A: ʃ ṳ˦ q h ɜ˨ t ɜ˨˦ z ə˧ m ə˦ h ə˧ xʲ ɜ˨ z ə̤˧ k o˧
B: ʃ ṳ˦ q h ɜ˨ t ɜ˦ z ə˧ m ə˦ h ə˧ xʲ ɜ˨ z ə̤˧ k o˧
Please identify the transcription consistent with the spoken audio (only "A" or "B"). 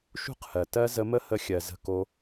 B